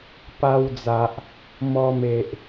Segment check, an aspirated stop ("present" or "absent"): absent